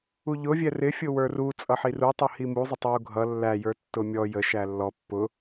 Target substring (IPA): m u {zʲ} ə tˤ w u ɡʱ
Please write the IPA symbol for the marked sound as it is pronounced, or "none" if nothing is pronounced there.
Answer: zˤ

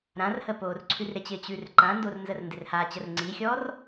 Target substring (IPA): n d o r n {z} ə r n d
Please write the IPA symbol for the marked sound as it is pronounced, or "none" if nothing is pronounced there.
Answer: z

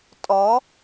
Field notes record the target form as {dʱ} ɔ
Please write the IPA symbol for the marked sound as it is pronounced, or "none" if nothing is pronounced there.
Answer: tʼ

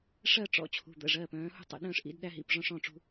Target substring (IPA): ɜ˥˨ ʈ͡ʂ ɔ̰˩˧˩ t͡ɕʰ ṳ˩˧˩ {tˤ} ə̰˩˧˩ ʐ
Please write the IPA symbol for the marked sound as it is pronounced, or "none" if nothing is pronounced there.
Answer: d̪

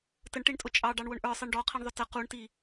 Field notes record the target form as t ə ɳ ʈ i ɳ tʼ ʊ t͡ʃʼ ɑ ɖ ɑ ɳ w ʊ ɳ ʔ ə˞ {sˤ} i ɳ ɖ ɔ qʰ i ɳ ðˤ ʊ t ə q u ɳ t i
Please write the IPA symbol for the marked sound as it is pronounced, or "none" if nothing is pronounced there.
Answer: sˤ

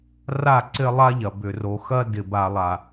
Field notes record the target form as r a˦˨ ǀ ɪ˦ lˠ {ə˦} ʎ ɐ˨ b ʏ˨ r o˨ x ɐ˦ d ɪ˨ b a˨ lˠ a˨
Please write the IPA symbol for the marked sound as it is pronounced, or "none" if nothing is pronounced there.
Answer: a˦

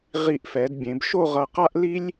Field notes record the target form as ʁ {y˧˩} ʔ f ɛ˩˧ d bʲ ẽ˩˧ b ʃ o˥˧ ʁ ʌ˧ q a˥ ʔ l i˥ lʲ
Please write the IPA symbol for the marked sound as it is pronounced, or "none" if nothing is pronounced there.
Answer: i˧˩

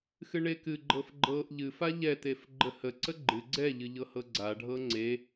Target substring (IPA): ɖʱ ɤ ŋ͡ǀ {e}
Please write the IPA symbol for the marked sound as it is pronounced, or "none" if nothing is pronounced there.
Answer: e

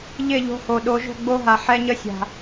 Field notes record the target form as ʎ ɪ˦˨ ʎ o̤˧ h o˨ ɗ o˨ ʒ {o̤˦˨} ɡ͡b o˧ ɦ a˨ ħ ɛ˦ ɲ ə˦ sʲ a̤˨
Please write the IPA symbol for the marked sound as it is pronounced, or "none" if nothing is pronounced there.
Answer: o̤˦˨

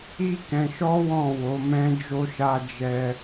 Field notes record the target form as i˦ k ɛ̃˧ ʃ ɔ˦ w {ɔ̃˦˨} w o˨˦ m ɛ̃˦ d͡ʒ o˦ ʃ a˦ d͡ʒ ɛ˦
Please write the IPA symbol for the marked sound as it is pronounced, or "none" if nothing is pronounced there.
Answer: ɔ̃˦˨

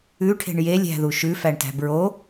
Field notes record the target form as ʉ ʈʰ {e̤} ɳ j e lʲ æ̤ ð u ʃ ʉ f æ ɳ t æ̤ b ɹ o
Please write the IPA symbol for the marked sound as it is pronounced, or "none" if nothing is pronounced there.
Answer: e̤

